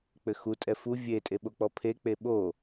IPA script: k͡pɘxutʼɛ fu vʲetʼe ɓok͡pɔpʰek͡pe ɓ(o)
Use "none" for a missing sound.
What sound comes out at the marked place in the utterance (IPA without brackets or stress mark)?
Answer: o